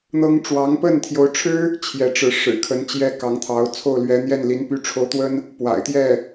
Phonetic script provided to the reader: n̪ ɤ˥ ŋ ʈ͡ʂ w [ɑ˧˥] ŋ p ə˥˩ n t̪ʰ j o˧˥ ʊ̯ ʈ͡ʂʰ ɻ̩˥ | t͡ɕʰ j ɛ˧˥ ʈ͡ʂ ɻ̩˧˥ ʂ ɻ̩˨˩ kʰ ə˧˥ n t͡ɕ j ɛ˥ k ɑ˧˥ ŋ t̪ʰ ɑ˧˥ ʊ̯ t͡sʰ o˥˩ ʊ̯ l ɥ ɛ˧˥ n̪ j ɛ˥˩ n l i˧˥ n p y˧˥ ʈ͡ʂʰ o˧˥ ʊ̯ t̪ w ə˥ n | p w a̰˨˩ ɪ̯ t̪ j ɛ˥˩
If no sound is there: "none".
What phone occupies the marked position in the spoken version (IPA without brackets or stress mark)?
ɑ˧˥